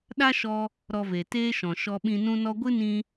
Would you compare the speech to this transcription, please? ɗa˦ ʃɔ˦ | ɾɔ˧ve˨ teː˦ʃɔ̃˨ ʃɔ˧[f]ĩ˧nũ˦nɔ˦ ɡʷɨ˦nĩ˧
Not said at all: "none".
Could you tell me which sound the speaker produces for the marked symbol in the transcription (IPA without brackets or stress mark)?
ɓ